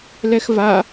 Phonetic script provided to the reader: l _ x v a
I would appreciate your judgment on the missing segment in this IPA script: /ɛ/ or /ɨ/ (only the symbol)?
ɛ